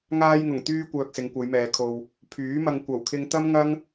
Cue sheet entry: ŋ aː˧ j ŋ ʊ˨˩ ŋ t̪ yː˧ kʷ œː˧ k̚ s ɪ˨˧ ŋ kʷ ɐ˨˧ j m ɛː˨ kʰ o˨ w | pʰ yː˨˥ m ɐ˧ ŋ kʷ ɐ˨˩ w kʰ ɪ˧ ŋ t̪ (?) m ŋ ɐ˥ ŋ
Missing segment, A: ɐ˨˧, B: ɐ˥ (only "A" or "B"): B